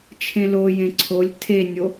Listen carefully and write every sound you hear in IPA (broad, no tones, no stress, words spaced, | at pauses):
t͡ʃʰẽlo jẽǀʰolʲ tʰenʲo